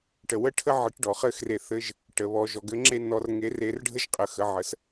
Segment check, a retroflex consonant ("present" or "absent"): present